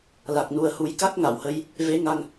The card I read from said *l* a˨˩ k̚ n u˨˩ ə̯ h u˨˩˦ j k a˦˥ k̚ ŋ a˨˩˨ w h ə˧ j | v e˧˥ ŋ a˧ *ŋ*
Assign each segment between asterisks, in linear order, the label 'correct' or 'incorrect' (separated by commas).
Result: correct, correct